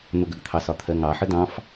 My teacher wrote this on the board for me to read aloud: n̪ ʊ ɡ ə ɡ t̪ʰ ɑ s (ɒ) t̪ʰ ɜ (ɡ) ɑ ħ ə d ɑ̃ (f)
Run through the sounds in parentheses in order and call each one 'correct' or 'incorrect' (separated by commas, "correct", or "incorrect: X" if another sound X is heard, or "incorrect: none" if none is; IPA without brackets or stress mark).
correct, incorrect: ŋ, correct